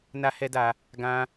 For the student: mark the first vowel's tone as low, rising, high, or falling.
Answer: high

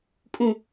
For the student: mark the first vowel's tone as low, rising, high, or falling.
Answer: low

